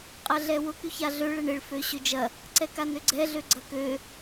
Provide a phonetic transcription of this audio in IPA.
qʼ ɐ ɮ ɛ w ʊ k y ç a ɮ ø ɭ ɛ ɳ ɪ ɭ f ø ɕ ø d͡ʒ ɐ | ǀ ɛ k a n ø ɡ͡ǀ ɛ ɮ ø ɡ͡ǀ ɐ k ø

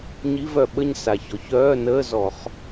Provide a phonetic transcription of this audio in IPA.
ɲ i˧˥˧ v œ˨ ɓ ə˥˧ ɲ s a˨ ç ɔ˩˥ ç œː˧˥˧ n əː˧˥˧ z ɔ˨˩˦ χ

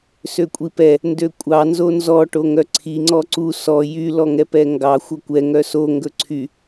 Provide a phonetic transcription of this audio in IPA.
s ø kʷʼ i p ɛ | n d ø kʷʼ ɑ n z o n z ɔ ʈ o ŋ œ ǀʰ i ŋ͡ǀ ɔ ǀ u s ɔ j y l ɔ ŋ ɛ p ɛ ŋ ɡ ɑ xʷ œ kʷ ɛ ŋ œ s o ŋ ɡ ɵ ǀʰ y

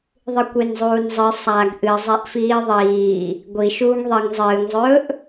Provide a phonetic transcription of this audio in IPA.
ðˤ ɨ kʷ e n zˤ uː n zˤ ɨ sˤ a ɡ ʔ ɨ zˤ e ʔ f iː ðˤ iː | ɡʷ i ʃ uː ŋ ðˤ i ŋ zˤ ɨː ŋ zˤ ɵː ʔ

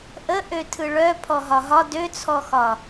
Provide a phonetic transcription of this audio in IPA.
ʔ ə ʔ ø tʰ ɯ ɭ œ pʰ ɔ ɦ ɒ ɦ ɒ d ø t͡sʰ ɔ x ɒ

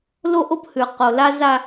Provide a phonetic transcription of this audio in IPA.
l o˦ ʔ o˦ p h ʉ˨ q o˨ l a˦ z a˦

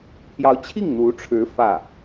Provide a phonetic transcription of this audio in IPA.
pʰ j ɑ˧˥ ʊ̯ t͡ɕʰ i˥˩ ŋ n̪ u˧˥ ʈ͡ʂʰ ɻ̩˧˥ f ä˥˩

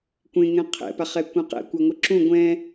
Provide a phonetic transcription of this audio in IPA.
kʷ ẽ ŋ ɛ̃ qʰ ɛ̰ p a χ ɛ kʷ ɛ̃ q ɛ̰ kʷ a ŋʷ ɯ ǁ ũ ɡʷ ɛ̃

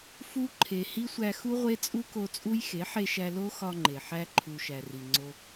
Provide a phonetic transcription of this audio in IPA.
f u˧ ǃʰ e˨ h i˦ sʷ æ˧ x u˦ ʁʷ e˦ t͡sʼ u˦ k o˧ t͡sʼ u˦ j x e˨˦ ħ e˧ ʃ æ˧ l o˦ x ɒ˧ ŋ͡ǃ e˨ ħ æ˧ ǃʰ u˨ ʃ æ˨ r i˨ ŋ͡ǀ o˧

